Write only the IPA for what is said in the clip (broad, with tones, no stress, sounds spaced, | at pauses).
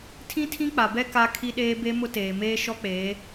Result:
tʰ ĩ˦ tʰ ĩ˦ k͡p a˨ b ɛ˦ k a˦ kʰ i˦ ɗ eː˦ b e˦ m ʊ˦ t eː˨ m eː˦ ʃ ɔ˦ k͡p eː˨˦